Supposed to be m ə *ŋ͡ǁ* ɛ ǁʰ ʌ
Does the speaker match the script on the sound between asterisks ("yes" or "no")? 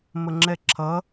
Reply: yes